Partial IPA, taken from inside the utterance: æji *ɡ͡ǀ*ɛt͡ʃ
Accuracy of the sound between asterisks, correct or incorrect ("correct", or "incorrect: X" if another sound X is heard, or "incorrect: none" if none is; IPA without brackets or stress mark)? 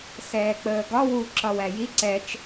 incorrect: ǀ